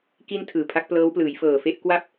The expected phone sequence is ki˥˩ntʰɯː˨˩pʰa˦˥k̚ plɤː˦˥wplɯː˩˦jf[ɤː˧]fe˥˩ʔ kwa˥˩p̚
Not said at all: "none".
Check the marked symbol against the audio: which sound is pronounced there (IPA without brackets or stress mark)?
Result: ɤː˨˩